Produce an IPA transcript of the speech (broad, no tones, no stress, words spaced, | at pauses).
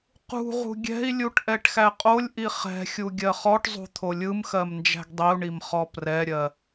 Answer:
qṳʁṳ ɡʲɛ̤i̯lʲuʈ ʔɛʈxæqʼolʲʔi χɛ̤xʲu ɡʲɜχɔʈzˤṳ t̪ʰolʲɯmxɜm nd͡ʒæ̤ɡdˤiu̯ɳim χɔprɛɾʲɜ